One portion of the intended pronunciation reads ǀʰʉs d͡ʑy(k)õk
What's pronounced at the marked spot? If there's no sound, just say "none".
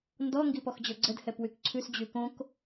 k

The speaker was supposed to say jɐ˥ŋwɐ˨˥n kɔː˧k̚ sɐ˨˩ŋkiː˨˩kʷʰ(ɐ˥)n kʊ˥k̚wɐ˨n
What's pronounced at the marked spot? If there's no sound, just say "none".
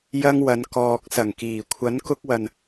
ɐ˨˥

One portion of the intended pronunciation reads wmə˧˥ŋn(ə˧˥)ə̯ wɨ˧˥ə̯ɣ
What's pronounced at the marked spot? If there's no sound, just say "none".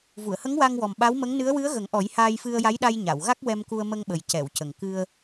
ɨ˧˥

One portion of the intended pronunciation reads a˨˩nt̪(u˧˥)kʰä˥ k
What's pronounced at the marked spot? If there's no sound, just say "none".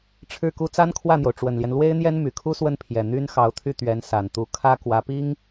u˧˥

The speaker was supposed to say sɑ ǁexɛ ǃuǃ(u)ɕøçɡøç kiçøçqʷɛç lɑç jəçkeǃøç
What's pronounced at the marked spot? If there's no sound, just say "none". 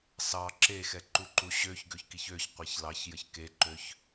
u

